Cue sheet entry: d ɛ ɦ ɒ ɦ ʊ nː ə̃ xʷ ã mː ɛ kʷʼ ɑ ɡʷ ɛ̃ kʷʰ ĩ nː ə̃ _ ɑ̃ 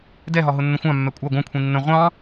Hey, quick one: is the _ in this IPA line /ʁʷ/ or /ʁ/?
ʁʷ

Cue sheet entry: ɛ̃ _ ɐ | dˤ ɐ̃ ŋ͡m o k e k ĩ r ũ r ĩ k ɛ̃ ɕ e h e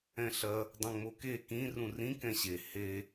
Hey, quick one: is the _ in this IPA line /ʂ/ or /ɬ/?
ɬ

